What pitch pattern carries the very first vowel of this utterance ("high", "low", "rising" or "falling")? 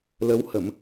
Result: rising